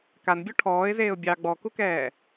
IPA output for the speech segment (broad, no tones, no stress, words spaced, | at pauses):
kanbʲɔ ʈʰɔːɪ̯zeːʊ̯ bʲɑ ɡ͡bɔkukɛː